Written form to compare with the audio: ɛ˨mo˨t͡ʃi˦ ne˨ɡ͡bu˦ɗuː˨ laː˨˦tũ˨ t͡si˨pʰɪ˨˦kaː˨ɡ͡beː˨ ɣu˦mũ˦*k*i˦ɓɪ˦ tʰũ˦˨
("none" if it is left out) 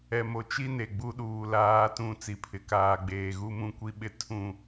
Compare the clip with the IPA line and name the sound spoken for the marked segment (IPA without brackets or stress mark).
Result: kʷ